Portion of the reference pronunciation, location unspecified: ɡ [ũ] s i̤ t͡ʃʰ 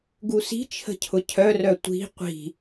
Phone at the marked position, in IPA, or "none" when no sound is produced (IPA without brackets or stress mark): u